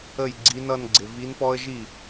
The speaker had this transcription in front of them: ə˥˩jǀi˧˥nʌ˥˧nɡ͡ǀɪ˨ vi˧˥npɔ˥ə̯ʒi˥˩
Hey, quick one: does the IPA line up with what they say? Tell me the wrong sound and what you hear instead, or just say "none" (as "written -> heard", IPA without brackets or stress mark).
ǀ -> ɡ͡ǀ